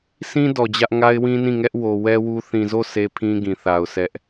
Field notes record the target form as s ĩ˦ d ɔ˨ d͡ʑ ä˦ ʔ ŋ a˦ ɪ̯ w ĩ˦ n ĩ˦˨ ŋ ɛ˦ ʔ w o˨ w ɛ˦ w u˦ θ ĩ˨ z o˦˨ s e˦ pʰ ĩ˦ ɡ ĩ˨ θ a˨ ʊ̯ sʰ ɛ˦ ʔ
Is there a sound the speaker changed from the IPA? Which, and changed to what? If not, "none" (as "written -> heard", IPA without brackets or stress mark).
none